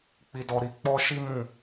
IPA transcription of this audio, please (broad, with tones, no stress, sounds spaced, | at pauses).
k͡p i˧ d ɔ˧ ɾ i˧ k͡p ɔ˦ ʃ i˦ m ũ˦˨